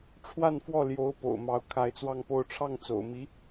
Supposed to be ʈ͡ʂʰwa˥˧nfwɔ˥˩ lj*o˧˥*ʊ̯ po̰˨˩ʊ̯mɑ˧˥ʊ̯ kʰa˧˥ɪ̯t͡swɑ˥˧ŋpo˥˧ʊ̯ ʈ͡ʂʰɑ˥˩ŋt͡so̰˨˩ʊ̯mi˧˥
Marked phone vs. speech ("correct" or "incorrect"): correct